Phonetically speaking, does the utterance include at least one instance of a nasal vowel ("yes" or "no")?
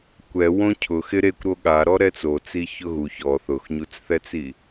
yes